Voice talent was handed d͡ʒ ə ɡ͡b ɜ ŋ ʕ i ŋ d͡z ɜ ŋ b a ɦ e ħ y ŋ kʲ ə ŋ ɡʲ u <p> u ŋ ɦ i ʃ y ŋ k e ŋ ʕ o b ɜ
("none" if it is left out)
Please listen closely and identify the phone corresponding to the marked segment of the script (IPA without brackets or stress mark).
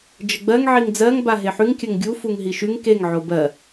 f